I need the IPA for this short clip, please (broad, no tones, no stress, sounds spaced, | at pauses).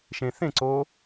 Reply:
ʃ ẽ θ ẽ ǀ o